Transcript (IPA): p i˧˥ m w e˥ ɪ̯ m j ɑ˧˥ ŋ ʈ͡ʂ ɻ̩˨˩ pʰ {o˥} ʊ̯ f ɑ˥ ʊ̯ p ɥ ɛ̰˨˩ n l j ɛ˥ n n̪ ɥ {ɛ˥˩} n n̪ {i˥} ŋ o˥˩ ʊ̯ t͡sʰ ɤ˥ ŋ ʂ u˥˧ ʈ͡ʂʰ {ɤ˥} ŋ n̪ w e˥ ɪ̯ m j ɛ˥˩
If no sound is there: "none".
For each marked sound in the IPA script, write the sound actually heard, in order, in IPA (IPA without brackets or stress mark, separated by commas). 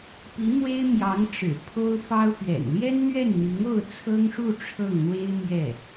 o˥, ɛ˥˩, i˧˥, ɤ˥˩